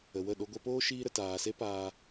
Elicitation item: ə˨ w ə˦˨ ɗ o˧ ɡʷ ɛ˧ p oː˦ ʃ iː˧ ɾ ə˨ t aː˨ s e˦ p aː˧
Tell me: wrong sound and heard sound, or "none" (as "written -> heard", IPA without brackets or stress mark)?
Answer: none